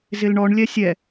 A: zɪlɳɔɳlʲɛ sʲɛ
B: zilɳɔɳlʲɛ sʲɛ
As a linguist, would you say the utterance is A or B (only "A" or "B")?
A